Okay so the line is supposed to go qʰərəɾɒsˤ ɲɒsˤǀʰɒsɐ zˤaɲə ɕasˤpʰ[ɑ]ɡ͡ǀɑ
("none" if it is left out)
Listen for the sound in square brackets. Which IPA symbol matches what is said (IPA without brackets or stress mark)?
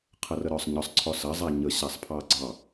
ɑ